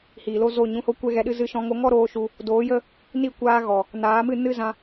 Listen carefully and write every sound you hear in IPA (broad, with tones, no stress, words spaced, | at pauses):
hiː˨lo˦zo˦˨ ɲũ˧ho˦kʷɛ˦ɣɛ˧ ɗɨ˧zɨ˧ʃɔ̃˧ ŋo˧ŋɔ˦ ɾoː˦ʃu˧ | doː˨˦jə˦ | ni˦˨ kʷaː˧ɣɔ˨ | naː˨˦mɨ˦˨ nɨ˦zã˧